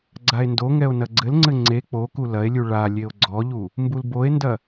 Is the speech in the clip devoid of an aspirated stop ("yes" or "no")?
yes